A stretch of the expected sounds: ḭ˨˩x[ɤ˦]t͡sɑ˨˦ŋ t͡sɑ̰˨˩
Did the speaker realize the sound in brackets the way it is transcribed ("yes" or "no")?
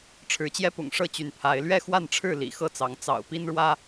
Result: no